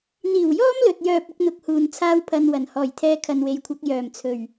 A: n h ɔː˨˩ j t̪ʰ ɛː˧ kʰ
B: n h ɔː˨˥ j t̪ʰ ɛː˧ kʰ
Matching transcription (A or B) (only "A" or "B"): A